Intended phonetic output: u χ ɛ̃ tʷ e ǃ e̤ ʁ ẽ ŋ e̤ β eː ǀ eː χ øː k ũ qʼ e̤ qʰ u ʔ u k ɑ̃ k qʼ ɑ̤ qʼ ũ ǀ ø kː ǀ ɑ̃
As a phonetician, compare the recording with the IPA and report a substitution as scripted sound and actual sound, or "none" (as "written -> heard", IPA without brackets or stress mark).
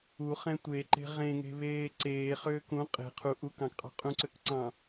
kː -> k